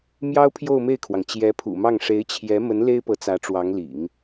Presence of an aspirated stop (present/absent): present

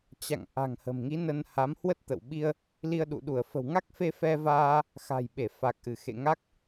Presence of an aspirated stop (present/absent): absent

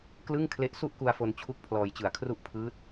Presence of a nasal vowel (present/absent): absent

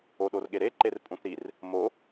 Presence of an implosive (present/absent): present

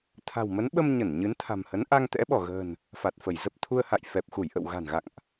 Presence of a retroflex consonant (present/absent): absent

